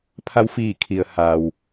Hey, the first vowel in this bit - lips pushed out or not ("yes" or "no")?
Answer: no